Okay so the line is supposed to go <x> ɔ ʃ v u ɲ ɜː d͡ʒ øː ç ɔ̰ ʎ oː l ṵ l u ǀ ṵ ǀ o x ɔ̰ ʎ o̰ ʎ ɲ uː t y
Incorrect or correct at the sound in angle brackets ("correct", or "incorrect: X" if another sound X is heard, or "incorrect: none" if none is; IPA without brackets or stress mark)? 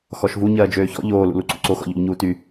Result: correct